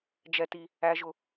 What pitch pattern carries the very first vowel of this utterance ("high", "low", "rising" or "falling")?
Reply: high